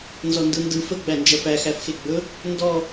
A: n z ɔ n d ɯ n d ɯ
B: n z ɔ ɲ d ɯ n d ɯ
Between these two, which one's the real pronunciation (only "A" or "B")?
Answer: A